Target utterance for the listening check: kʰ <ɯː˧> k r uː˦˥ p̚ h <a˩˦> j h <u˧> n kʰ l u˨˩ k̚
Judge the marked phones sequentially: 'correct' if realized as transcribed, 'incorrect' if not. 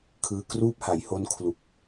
correct, correct, incorrect: o˧

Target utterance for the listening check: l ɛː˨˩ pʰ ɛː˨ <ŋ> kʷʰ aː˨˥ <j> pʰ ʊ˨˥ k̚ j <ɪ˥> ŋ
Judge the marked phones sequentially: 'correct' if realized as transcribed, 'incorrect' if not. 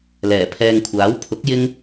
correct, incorrect: w, correct

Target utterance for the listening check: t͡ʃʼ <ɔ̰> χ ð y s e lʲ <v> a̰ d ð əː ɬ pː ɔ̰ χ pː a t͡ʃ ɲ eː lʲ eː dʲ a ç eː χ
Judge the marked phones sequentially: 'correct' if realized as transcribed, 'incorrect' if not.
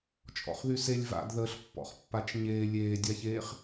correct, correct

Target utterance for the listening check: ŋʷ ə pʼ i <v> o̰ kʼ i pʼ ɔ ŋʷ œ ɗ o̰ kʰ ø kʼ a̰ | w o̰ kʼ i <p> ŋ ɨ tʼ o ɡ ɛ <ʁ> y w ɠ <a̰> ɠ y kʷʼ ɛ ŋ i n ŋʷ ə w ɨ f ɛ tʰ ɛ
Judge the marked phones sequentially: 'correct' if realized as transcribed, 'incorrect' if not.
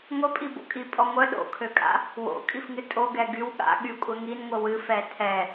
incorrect: b, incorrect: f, incorrect: ɡ, correct

